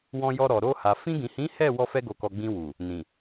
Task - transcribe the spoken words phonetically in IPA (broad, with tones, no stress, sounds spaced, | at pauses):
w ɔ̃˧ j ɔ˧ ɾ ɔ˨ ɾ o˧ h a˨ f ĩ˧ ɡ ĩ˨ h ĩ˨˦ h ɛ˦˨ w ɔ˧ f ɛ˧ ɡ o˨ k ɔ˨ ɡ͡b ĩ˧ w u˨ | n ĩ˨